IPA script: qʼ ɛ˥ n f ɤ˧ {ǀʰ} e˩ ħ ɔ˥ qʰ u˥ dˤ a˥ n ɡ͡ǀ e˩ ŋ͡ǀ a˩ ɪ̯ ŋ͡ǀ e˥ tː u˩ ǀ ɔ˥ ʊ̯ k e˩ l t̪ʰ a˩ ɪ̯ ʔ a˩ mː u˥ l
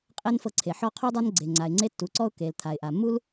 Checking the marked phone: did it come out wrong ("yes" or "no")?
no